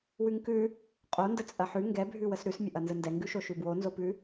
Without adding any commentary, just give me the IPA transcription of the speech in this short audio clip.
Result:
wʉŋkʉ | qʼondə t͡sʼɐħʉ ŋɡɛbʱʉwəs ɾʉsmʲəʔɐ nzəndɛŋɡʉʃo ʃʉbwonzopʉ

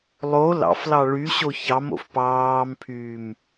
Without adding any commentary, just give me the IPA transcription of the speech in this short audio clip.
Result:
lˠo lɑ̰flɑ ɭy ɕoçɑmo̰f pɑːmpʰyːm

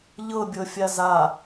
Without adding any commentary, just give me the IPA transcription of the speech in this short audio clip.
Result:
ʎɤbʲɤfʲa za

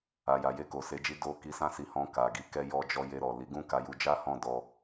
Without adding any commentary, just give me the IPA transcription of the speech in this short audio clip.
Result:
a˨ja˨ je˧ko˨se˨˦d͡ʒi˧ do˧ ki˧sã˦si˧hɔ̃˧ ka˨ ɡi˨˦kɛ˧jɔ˧d͡ʒɔ˧ je˧ɾɔ˨ li˨˦ɡũ˦ka˧ju˧ d͡ʒa˦hɔ̃˦˨dɔ˧

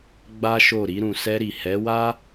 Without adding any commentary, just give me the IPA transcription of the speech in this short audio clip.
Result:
ɡ͡ba˦ʃo˦˨ ɾi˧ɾũ˨sɛ˧ɾi˨ hɛ˨˦wa˦

